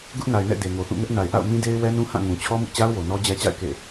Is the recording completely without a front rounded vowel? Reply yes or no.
yes